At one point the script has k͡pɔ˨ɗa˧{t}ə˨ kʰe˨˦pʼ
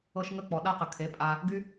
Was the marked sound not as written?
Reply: yes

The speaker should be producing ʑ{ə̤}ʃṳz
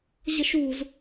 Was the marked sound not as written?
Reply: no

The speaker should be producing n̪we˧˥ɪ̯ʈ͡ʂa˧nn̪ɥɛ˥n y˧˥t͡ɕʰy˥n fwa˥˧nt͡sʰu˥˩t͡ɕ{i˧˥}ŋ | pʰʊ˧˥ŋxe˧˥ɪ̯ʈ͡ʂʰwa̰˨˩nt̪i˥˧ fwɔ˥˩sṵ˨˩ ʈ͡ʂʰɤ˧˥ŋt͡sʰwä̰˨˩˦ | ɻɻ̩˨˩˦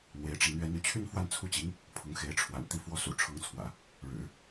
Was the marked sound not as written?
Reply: no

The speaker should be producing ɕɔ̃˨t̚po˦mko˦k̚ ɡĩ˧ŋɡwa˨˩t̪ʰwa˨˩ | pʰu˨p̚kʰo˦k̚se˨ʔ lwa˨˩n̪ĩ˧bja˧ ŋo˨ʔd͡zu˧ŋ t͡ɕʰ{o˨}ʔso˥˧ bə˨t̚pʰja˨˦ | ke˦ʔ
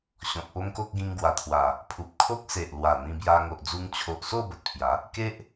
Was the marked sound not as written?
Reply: no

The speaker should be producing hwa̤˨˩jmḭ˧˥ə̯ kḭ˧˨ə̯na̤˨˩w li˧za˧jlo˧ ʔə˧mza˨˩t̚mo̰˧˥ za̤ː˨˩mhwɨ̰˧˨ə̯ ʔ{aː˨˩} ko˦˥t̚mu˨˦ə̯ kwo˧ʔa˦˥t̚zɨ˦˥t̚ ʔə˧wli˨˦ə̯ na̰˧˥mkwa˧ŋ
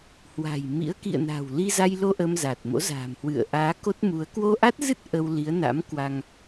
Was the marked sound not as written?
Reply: yes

